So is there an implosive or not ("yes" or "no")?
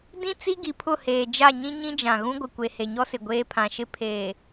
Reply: no